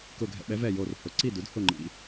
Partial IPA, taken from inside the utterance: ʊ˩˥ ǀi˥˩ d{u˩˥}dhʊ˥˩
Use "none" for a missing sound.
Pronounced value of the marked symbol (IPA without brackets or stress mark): u˩˥